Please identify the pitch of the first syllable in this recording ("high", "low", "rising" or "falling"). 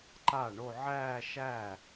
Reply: falling